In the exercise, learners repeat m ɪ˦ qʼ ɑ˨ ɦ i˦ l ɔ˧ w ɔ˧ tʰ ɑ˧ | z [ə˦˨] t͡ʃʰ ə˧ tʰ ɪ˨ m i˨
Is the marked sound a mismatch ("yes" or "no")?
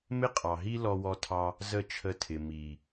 no